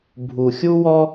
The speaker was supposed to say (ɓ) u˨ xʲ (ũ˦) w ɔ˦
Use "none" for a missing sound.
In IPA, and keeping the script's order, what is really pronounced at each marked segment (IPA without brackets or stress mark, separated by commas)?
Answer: bʱ, u˦